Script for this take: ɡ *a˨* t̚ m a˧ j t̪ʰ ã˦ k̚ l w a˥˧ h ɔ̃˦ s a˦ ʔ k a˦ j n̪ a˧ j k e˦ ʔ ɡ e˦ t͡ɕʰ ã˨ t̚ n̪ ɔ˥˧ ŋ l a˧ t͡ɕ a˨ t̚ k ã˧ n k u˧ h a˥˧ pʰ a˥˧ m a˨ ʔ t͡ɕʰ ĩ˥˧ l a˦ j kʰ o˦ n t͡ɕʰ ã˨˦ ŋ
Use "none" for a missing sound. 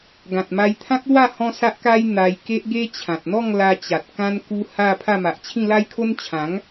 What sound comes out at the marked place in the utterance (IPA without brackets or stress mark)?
ã˨